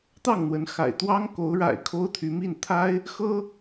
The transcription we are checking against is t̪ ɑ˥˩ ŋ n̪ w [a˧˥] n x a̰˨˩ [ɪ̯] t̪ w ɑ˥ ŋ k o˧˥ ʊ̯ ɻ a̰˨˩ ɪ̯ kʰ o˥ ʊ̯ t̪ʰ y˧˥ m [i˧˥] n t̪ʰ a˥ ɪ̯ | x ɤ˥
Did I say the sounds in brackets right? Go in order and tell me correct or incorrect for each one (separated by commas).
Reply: incorrect, correct, incorrect